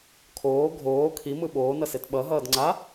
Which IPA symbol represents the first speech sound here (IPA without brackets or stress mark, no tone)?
kʰ